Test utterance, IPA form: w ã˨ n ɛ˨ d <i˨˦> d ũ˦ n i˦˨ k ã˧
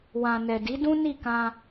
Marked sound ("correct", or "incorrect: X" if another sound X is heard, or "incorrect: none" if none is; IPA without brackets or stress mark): correct